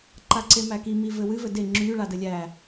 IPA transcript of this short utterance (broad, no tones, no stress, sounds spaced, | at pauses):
ǃ a ǀ e m æ k i m i v ɘ w ɨ v ɘ d e ŋ͡ǁ y ɭ a d ɘ lʲ æ